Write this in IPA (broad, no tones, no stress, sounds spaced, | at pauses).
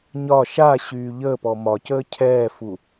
ɲ ɒ ʃ a ɕ yː ʎ əː p ɔ m ɒ c əː cʰ ɛː f u